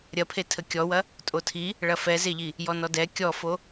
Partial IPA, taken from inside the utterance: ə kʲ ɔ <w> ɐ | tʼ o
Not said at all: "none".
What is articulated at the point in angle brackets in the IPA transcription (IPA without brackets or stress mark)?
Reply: w